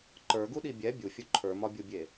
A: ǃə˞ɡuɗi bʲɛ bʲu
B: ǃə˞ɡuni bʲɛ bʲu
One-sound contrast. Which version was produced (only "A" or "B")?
A